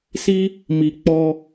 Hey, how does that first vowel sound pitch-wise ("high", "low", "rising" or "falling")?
high